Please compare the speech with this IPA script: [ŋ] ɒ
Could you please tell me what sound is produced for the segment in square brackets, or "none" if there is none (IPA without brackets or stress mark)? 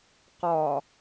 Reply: q